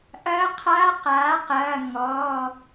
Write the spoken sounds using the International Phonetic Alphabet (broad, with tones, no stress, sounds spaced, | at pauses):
ʔ ɐː˧˥ qʰ aː˧˥ q aː˩˥ q ɐː˩˧˩ ŋ ɔ˩˧˩